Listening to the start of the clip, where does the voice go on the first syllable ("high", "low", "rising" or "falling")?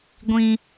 high